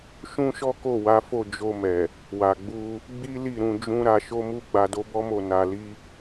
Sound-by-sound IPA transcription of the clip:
ʃ ũ˦ ʃ ɔ˦ k o˦˨ w a˨˦ f o˦˨ d͡ʒ o˧ m ɛ˨ | w a˨ ɡ͡b u˧ | ɡ͡b i˦ l i˦˨ ɾ ũ˧ d͡ʒ ũ˦ ɾ a˧ ʃ o˦ m u˦ ɡ͡b a˧ d o˦ b ɔ˦ m o˦˨ n a˧ l i˦

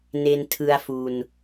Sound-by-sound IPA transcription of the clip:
n e˧ n tʰ ɯ˧ a̯ f u˧ n

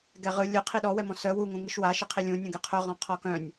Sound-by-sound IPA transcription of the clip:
ɡ ɛ ʁ ɯ lʲ ɯ qʰ i ɗ ɔ w ɛ m ɔ̃ s œ w u ŋ ũ ŋ ɯ ʃ w a ʃ i qʰ i lʲ ũ nʲ ũ ɡ ɛ qʰ œ ʁ ɔ̃ qʰ ɔ k œ̃ nʲ

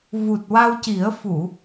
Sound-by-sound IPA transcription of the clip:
v u˨˩ t̚ w a˧ w c i˨˩˦ ə̯ f u˨˩˨

